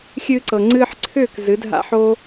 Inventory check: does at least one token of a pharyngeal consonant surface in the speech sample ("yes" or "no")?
yes